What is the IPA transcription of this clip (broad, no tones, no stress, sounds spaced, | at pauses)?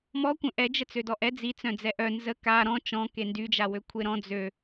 m ɔ kʷ œ̃ ʔ ɛ d͡ʒ ə t͡s ø d ɔ ʔ ɛ d͡z i t͡s œ̃ d͡z ɛ ʔ œ n z ə k a ɾ ɔ̃ t͡ʃ ɔ̃ k e n d y d͡ʒ a w ø kʷʰ e ɾ ɔ̃ d͡z ø